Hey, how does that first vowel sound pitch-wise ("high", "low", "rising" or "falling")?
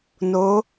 rising